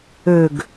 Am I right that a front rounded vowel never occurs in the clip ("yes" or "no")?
no